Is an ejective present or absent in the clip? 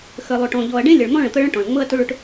absent